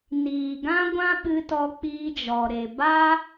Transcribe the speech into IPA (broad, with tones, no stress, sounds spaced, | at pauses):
n iː˨ ɡ ã˦ ɡʷ ã˦ ɓ ɨ˧ t ɔ˧ k͡p iː˦ d͡ʒ ɔ˧ ɾ e˧ b a˦